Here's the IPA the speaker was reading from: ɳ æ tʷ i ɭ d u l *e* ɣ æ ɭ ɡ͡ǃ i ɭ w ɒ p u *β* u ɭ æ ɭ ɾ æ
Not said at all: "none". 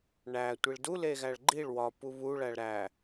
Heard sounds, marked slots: e, β

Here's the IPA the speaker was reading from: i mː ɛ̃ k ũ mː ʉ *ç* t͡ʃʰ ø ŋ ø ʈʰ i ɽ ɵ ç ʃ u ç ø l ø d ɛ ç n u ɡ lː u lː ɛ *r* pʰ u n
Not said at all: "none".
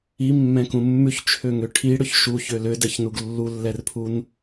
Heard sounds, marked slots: ç, r

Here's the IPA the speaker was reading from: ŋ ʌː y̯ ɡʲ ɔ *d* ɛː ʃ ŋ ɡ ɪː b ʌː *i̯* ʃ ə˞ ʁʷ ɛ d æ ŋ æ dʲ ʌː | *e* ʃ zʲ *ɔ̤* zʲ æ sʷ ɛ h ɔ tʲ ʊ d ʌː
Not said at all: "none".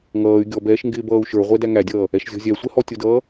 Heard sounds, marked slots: b, u̯, ɛ, ɔ̤

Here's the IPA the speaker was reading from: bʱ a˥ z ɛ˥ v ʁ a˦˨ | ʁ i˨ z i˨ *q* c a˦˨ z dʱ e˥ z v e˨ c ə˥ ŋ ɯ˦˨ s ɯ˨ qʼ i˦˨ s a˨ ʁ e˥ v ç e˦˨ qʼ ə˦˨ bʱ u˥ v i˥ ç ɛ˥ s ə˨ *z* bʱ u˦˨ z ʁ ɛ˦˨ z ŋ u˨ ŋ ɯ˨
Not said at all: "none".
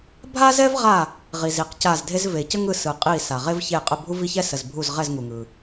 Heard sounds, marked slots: q, z

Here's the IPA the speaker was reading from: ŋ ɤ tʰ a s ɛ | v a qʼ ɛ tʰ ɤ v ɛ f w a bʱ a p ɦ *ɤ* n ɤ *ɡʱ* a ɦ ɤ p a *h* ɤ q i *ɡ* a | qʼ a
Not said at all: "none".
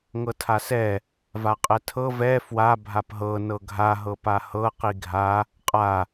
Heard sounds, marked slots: ɤ, ɡʱ, h, ɡʱ

